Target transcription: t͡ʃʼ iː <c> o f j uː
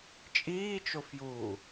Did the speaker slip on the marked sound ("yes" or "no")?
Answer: yes